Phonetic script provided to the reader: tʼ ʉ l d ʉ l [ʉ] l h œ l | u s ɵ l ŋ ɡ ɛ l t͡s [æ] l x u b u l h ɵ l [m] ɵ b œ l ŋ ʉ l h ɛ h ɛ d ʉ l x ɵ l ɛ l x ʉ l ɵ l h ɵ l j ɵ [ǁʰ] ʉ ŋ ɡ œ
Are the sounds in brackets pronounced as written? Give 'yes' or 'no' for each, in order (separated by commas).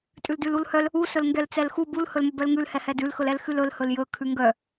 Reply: no, no, yes, no